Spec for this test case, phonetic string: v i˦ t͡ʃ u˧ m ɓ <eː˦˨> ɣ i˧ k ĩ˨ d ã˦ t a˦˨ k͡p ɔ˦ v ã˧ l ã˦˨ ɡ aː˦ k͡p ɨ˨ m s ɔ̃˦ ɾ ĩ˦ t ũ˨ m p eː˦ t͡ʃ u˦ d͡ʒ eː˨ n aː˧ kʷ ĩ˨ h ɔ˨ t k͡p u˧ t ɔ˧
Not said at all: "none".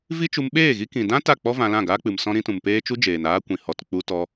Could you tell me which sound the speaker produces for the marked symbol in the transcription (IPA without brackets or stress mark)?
eː˦˨